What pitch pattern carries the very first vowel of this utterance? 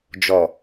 low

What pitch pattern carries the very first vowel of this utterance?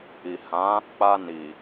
low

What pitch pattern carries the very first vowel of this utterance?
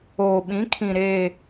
low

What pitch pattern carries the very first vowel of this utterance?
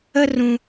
high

